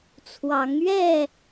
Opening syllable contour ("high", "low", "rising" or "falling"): rising